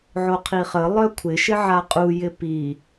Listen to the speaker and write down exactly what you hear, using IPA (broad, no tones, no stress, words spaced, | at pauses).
ʕoqʰiχə lˠœkʷʰɪʃɪ ʕaqʼu jɪpi